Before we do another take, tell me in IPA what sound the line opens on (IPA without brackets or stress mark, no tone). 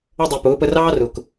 ʌ